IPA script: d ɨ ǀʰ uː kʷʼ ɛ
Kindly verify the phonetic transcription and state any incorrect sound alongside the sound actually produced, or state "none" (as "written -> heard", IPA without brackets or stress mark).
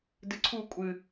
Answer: ɛ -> ɨ